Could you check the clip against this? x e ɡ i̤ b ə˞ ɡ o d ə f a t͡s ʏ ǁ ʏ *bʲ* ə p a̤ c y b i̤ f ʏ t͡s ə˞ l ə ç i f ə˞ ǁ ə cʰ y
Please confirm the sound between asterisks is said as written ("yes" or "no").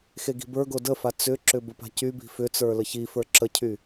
no